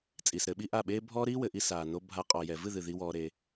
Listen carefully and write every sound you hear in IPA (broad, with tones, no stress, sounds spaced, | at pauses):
t͡sʼ iː˨ s ɾ ɘ˧ ɓ i˦ ʔ a˦˨ ɓ eː˦ bʱ ɔː˦ ɾ iː˦ w ɘ˨ ʔ i˧ s aː˨ n o˧ bʱ a˧ qʼ ɔ˨ j ɛ˨ v ɨ˦˨ ð ɨ˨ ð i˧ w ɔː˧ ɾ e˧